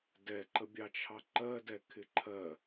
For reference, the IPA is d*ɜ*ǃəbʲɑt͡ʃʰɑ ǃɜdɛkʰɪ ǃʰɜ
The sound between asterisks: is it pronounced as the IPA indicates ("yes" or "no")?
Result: no